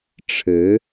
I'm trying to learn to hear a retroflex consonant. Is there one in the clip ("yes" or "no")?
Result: yes